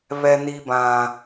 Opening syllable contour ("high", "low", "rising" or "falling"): low